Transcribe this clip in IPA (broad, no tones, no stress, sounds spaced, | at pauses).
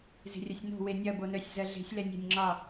z e̤ rʲ ɐ sʲ n o̤ w e nʲ ɐ b o n œ sʲ z ɜ ɮ e̤ sʲ l ɛ nʲ ɛ̤ nʲ ŋ͡ǁ ɒ